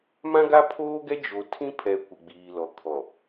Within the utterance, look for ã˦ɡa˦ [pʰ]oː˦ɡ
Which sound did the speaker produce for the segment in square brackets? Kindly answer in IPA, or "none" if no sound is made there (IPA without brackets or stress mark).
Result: pʰ